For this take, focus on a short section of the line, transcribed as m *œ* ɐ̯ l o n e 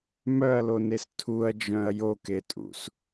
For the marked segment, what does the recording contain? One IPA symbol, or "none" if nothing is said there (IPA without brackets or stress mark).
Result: œ